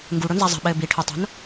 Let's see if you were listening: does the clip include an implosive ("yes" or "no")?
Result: yes